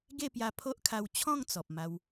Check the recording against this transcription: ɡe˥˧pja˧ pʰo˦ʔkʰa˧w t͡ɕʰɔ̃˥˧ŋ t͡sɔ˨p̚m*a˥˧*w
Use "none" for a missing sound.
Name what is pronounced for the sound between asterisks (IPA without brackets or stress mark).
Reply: a˧